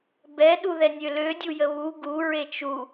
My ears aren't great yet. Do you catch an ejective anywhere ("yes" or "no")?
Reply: no